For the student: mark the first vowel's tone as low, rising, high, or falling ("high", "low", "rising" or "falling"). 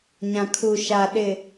low